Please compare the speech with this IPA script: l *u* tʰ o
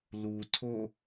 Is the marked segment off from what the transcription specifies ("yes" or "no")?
no